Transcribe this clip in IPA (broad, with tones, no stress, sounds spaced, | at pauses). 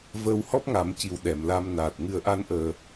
v əː˧ w h ɔ˦˥ p̚ ŋ a˨˩˦ m c i˨˩ w ɗ ɛ˨˩˨ m l a˧ m n aː˨˩ t̚ ŋ ɨ˧ ə̯ ʔ a˧ n ʔ əː˨˩